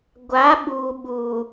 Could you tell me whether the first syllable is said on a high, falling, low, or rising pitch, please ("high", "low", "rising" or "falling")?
rising